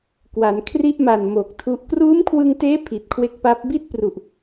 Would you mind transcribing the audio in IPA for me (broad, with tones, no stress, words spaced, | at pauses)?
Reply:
kwa˩˦nkʰri˥˩ʔma˨˩n mo˨˩k̚tʰu˦˥ʔ kruː˦˥mkʰwɯ˧ŋteː˦˥ pʰi˨˩t̚kʰwe˦˥k̚pa˦˥p̚ bi˥˩t̚pru˨˩ʔ